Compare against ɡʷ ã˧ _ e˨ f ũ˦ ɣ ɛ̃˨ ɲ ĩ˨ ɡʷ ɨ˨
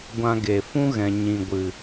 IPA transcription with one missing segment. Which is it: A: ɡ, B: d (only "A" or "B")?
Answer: A